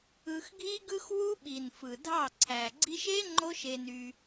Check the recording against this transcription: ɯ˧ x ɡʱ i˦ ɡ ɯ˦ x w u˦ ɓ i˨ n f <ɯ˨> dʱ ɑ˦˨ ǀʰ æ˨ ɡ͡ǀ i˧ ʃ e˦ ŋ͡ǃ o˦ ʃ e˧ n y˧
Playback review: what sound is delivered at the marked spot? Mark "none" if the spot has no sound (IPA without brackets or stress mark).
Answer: ɯ˨